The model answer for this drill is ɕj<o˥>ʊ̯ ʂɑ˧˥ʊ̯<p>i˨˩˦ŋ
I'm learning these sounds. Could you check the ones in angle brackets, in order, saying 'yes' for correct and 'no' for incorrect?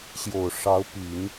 no, yes

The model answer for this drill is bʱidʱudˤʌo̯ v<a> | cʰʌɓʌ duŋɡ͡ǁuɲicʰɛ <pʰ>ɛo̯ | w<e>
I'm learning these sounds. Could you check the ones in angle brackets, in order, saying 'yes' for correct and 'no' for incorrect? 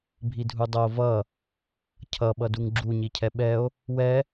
no, no, no

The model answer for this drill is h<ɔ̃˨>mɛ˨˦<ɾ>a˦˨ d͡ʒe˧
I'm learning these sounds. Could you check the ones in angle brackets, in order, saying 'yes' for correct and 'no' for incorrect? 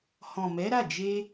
yes, yes

